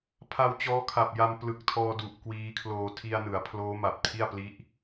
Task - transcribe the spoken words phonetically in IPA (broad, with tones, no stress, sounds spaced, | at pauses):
pʰ a˧ w t͡ɕ ɔː˦˥ kʰ a˨˩ p̚ j a˧ m p l ɯ˨˩ k̚ tʰ ɔː˧ d u˨˩ ʔ k w iː˦˥ kʰ l oː˧ tʰ i˧ a̯ n ɯ˩˦ a̯ pʰ l oː˦˥ m a˨˩ p̚ tʰ i˥˩ a̯ p l i˦˥ ʔ